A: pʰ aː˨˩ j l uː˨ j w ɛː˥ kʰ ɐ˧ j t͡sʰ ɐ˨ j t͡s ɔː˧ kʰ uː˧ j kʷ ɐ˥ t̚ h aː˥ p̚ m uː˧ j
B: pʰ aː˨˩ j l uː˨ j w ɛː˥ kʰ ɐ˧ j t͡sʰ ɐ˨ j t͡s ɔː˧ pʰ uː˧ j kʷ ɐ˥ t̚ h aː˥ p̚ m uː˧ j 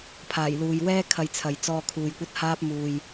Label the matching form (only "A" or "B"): A